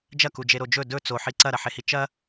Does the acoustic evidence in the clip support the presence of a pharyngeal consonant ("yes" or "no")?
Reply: yes